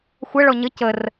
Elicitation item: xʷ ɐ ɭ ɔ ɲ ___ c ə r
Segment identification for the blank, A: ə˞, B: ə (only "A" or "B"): B